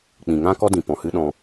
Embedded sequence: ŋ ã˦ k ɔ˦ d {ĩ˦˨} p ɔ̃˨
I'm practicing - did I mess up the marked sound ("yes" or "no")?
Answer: yes